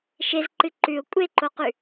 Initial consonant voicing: voiceless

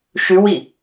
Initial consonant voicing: voiceless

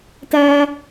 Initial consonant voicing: voiceless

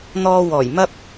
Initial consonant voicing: voiced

